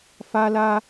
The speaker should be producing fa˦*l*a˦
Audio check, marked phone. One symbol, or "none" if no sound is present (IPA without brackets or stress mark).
l